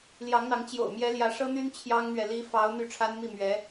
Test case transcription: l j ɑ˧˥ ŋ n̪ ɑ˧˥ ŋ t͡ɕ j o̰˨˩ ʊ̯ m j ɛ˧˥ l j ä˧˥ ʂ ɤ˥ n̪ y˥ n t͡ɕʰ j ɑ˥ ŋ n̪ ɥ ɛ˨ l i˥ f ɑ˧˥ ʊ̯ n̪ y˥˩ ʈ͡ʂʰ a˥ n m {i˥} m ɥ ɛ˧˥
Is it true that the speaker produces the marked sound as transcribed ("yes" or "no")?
no